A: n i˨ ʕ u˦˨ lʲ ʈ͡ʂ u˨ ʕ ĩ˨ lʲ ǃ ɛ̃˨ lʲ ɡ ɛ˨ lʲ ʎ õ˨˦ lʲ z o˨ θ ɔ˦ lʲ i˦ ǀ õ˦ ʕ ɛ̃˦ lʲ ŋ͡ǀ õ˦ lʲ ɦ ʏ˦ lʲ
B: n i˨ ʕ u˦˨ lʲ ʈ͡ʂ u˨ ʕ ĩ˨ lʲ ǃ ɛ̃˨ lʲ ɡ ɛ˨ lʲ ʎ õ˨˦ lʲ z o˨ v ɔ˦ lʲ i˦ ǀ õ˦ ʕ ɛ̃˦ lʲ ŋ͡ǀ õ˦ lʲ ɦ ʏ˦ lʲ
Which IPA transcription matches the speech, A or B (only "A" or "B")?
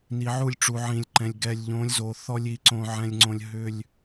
A